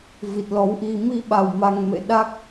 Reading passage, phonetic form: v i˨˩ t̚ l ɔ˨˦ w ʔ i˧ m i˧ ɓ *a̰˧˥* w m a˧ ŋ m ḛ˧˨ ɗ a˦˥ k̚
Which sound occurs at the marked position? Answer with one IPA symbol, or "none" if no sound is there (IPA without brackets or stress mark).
a˨˩